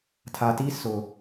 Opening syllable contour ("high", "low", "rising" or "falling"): low